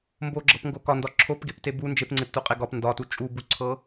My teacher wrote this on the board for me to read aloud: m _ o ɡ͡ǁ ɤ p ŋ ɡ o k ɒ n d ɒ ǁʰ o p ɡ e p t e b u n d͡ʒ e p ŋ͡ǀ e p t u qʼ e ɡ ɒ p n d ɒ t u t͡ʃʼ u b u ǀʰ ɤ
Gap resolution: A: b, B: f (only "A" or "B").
A